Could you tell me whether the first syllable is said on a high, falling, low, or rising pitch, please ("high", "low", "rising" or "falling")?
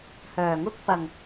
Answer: low